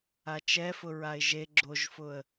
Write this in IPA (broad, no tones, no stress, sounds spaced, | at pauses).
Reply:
a t͡ʃ ɛ f ʊ ɹ a ɪ̯ ʒ e ɡ͡ǁ o ʒ f ʊ ə̯